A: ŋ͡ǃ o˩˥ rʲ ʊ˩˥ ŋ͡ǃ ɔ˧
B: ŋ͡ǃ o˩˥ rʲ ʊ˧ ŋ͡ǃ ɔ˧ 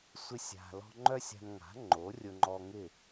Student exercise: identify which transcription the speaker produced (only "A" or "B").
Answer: B